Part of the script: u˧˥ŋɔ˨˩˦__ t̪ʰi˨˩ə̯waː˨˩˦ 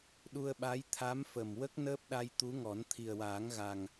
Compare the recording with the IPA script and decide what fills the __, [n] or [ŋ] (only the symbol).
n